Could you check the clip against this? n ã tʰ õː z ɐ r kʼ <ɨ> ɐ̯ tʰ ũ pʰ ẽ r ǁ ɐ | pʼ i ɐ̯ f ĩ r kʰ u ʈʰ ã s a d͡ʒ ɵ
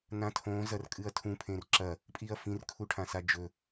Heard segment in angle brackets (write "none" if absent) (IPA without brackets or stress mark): ɨ